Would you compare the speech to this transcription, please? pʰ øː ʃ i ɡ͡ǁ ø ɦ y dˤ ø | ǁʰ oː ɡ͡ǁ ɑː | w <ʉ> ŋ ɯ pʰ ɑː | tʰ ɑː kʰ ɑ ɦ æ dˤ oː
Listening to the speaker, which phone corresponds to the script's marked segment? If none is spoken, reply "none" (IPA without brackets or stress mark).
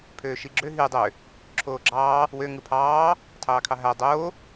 ø